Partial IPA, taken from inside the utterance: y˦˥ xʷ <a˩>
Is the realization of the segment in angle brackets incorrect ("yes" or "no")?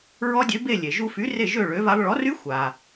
no